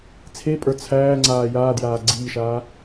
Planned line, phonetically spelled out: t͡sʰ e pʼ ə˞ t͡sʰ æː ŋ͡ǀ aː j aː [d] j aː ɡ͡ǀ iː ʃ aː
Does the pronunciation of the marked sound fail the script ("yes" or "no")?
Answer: no